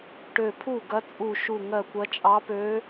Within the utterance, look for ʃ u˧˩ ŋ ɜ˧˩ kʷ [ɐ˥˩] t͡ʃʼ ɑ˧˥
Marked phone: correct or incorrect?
incorrect